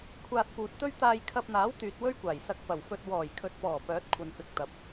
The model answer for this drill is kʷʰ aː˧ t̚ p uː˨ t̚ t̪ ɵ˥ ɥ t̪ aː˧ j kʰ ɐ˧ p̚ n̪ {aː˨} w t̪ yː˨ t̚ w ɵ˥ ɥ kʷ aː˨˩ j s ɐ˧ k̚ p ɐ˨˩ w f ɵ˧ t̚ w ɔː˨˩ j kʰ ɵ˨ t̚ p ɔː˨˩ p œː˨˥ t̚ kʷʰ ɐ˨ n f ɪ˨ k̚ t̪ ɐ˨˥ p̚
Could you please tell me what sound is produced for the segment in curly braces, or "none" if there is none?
aː˨˥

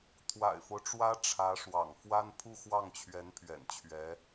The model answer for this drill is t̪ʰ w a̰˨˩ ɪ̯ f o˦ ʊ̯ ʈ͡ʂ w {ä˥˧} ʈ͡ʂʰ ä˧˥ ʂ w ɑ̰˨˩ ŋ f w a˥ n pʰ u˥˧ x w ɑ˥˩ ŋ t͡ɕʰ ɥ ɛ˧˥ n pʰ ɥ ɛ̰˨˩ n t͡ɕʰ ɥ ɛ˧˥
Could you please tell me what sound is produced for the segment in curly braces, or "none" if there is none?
ä˥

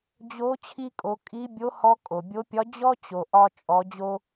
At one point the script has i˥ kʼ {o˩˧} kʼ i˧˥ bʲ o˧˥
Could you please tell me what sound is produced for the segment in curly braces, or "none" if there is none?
o˩˧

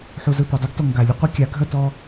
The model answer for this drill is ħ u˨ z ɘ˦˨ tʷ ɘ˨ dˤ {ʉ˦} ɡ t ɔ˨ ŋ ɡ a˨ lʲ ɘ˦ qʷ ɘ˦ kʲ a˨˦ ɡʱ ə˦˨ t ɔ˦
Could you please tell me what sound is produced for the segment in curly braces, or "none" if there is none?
ʉ˦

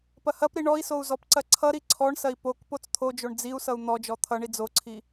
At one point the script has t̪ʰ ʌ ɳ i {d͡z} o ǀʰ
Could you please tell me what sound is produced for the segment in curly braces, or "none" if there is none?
d͡z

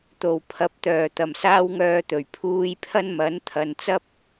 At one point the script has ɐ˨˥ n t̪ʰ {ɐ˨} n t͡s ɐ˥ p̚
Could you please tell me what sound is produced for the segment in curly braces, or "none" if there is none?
ɐ˨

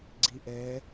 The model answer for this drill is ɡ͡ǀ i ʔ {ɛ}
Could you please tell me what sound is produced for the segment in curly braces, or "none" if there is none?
ɛ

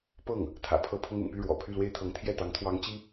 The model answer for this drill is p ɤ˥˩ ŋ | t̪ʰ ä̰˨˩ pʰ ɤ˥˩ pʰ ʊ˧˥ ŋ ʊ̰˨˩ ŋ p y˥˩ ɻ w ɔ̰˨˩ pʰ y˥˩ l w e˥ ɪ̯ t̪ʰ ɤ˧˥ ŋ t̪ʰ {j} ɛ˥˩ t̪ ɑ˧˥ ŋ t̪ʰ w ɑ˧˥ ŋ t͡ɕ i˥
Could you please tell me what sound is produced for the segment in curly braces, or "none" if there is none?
j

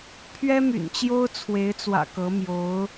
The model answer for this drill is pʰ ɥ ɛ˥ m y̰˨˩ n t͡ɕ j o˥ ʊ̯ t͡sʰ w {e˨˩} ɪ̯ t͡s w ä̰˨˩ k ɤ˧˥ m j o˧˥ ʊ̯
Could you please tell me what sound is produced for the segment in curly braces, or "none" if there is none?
e˧˥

